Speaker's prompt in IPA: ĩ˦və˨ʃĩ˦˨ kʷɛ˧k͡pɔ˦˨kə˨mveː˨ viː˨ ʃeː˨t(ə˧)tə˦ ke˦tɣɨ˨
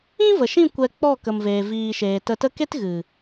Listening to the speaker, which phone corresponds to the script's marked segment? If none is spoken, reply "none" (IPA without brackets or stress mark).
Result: ə˧